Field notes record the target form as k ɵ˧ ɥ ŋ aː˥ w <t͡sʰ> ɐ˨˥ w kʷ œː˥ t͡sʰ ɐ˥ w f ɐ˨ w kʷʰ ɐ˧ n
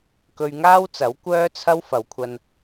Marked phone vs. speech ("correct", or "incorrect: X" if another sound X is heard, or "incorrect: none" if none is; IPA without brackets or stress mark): incorrect: t͡s